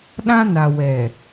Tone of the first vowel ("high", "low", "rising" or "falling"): high